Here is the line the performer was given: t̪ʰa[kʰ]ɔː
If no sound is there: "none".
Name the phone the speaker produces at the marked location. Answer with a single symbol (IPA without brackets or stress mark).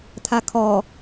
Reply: kʰ